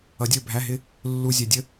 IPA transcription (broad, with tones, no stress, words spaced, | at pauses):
ʌ˨˦dʲə˞˥˨bʱæ˧˥˧ɦɪ˥ | lːu˨ zʲɛ˨dʲə˥